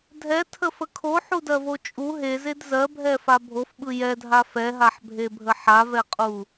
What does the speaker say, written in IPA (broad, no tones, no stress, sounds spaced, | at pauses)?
dʱ ɛ tʰ ə f ə kʰ o ħ u d ɜ v o t͡ʃʼ u ɦ e z e d z ɜ bʱ ɛ f a bʱ o f ɓ ɯ j ɛ dʱ a f ɛ ɦ a ħ bʱ e bʱ ə ħ a v ɛ qʼ u